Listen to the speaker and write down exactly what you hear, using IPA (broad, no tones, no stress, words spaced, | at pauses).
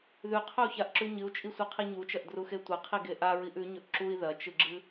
ðʉqʰɵu̯çaʔǁʉ ɲɨu̯t͡ʃʼisʷɨqʰi ɲut͡ʃɐʔdruxe tʷɐqʰiɡe ʔaɹiʔ ʉɲɵʔ ǁui̯ ðɐt͡ʃɨɡ͡ǁɨ